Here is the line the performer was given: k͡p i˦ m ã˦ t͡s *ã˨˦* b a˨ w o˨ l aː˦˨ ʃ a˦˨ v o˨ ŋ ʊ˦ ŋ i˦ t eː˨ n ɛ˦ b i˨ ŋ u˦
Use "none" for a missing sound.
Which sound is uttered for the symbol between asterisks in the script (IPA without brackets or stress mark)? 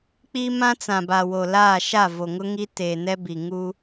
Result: ã˨